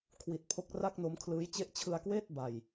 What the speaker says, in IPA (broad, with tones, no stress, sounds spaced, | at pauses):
kʰ w i˨˩ t̚ pʰ o˦˥ k̚ r a˥˩ k̚ n o˦˥ m kʰ l ɯː˦˥ j t͡ɕ e˦˥ ʔ t͡ɕʰ ɯ˧ a̯ k w eː˥˩ t̚ b a˧ j